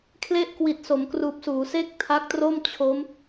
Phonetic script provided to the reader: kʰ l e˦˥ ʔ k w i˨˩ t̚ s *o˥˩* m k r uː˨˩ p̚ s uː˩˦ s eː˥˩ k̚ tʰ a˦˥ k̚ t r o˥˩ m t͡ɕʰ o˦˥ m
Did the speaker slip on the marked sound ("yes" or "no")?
yes